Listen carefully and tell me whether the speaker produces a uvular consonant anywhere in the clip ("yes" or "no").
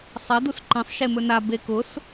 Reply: no